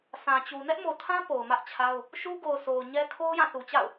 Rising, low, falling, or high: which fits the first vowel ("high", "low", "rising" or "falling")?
low